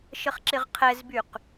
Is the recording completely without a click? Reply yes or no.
no